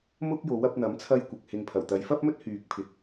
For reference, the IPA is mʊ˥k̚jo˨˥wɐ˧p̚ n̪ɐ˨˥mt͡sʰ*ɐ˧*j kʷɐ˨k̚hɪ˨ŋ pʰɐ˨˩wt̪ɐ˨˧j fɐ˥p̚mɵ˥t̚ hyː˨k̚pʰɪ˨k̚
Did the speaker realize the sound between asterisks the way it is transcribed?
yes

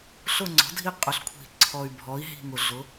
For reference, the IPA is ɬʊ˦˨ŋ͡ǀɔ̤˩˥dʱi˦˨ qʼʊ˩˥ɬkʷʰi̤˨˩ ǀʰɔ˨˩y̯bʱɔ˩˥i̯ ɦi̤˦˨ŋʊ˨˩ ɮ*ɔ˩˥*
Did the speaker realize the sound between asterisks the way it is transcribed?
no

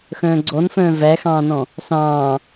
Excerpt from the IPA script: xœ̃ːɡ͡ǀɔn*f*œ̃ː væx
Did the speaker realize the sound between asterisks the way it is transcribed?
yes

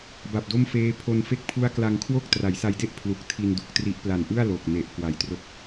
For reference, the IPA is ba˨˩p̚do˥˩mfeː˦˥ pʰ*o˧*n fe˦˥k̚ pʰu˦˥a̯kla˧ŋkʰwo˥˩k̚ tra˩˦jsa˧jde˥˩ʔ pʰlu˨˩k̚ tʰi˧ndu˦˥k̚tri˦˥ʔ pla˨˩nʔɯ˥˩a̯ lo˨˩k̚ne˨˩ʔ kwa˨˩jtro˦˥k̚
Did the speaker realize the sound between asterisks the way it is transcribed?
yes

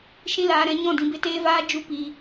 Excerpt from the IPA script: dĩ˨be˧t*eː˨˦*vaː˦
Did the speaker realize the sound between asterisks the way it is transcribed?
no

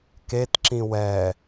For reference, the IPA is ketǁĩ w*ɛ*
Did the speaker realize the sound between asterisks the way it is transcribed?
yes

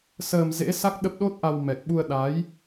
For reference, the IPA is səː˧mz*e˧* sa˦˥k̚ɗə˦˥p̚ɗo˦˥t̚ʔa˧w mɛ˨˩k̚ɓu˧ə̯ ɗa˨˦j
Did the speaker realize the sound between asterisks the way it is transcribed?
no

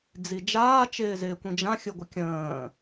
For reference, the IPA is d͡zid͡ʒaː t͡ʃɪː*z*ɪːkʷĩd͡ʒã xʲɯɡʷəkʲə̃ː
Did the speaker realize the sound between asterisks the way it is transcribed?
yes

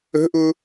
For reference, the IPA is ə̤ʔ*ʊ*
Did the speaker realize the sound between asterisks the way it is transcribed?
yes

